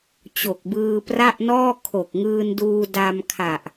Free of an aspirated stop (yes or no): no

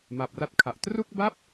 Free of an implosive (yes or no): yes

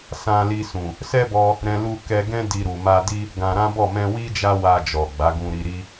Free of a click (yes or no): yes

